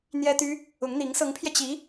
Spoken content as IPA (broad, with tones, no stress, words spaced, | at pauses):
n̪jɛ˥t̪y˥ | ʊ˧˥ŋn̪i˧˥ŋ sɤ˧˥ŋpʰjɛ˧ t͡ɕi˧˥